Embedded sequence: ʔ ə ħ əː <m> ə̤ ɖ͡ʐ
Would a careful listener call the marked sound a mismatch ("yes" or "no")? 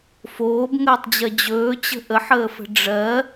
yes